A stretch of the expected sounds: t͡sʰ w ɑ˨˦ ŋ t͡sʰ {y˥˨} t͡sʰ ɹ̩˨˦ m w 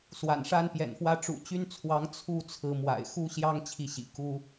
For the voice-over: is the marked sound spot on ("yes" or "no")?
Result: no